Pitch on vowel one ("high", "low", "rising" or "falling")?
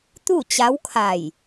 falling